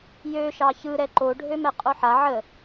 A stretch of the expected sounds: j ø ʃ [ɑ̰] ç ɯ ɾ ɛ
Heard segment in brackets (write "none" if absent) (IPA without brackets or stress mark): ɑ